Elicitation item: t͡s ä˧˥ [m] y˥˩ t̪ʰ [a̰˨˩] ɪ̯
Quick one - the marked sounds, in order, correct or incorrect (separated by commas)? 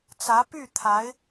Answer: incorrect, incorrect